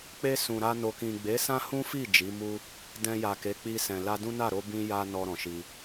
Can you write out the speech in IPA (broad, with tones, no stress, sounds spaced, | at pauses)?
k͡p e˧ s ũ˨ ɾ a˧ n o˨ k ĩ˨ ɡ͡b e˨˦ s ã˦ h ũ˦ f i˦˨ d͡ʒ i˨˦ m u˦ | d ɛ̃˧ j a˨ k e˨˦ k͡p i˧ s ɛ̃˨ l a˧ d ũ˦ n a˦˨ ɾ o˧ b ĩ˦ j a˦ n ɔ˧ ɾ ɔ̃˨ ʃ i˧